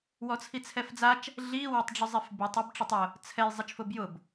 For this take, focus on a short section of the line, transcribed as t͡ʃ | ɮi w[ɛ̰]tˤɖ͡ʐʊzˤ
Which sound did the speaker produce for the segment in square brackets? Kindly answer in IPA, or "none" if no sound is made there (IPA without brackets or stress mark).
ɛ